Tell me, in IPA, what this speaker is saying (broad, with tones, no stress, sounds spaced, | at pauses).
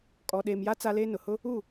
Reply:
kʼ ɔ˨ ɗ eː˨ m j a˦ t͡s a˦ l eː˦ n ʊ˨ h ʊ˦ | u˦˨